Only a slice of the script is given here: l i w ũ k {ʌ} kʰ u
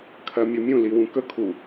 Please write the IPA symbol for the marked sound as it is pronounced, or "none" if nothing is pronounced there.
ə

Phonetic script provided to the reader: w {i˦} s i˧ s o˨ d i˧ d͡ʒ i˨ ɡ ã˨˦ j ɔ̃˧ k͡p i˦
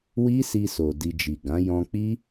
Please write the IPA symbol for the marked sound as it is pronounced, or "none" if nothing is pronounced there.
i˦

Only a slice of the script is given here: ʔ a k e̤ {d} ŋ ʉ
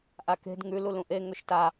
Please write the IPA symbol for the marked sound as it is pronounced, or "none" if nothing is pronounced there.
d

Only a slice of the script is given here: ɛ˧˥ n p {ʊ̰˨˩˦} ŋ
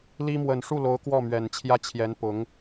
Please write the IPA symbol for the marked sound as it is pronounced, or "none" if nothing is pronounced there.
ʊ˧˥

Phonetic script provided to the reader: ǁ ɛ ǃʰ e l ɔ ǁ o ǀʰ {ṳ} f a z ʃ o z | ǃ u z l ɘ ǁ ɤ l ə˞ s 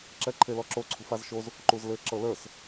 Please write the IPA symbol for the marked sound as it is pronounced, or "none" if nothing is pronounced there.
ṳ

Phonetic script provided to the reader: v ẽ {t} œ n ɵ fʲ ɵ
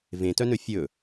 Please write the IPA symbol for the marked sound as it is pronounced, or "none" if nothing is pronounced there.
t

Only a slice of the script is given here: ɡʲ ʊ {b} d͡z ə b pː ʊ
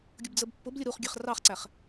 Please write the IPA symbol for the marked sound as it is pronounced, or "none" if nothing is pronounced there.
b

